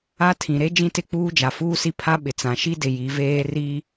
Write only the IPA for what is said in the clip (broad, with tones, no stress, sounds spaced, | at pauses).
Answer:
a˦ tʰ ĩ˨ ɾ e˦ d͡ʒ ĩ˦ t ɪ˦˨ k͡p uː˦ d͡ʒ a˨ f uː˦ s i˦ pʰ a˦ ɓ ɪ˨ t͡s ã˨ ʃ i˦ d ɪ˨ j i˨˦ v eː˦ r i˦